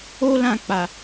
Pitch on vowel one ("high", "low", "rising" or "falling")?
high